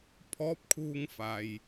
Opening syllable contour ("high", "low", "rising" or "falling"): rising